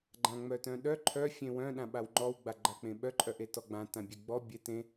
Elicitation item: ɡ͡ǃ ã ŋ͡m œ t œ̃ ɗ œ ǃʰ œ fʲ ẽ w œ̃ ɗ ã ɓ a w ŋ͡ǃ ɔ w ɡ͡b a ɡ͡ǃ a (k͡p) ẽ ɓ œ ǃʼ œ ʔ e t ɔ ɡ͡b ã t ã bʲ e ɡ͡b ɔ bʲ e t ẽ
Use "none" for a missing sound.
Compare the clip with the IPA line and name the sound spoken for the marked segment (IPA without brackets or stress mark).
k͡p